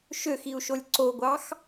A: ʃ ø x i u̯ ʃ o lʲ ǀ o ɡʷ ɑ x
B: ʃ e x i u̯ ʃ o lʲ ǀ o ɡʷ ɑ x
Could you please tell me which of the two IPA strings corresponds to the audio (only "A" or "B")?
A